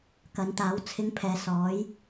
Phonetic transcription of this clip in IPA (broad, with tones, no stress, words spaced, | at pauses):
kɐ˨˧nt̪aː˨˥wt͡sʰɪ˧ŋpʰɛː˨ sɔː˨˥j